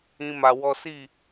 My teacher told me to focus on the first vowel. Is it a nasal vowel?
yes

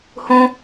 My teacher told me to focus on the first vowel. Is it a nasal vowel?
yes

